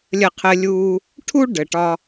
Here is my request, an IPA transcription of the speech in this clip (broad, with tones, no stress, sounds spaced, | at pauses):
lʲ ə˦ qʰ ɘ˦ lʲ uː˦ | ʈʰ u˥ ɖ ɘ˨ ʈ ɒ˦